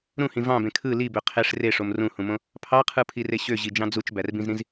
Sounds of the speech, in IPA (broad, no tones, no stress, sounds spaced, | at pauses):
ɾ ũ h ĩ v ɑ̃ b ẽ kʰ ɯ l i b ø qʰ e ʂ r e ʂ o m r ũ h ũ m õ | pʰ ɑ qʰ ɯ pʰ i r e ɕ ø ʑ i d͡ʒ ɑ̃ d͡z u t͡ʃ b æ r b ĩ z ɾ ĩ z